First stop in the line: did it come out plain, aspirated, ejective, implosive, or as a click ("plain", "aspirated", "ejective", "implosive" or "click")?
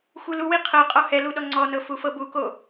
aspirated